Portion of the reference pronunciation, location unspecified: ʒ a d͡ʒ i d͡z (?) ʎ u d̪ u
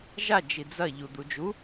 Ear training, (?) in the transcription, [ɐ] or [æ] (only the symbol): ɐ